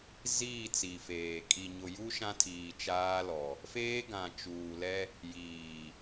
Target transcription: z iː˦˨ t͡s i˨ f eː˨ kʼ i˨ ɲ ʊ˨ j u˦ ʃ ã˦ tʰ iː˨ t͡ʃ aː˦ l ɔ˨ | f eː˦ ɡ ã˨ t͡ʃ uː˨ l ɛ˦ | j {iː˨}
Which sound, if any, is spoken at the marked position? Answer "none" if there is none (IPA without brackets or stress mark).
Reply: iː˨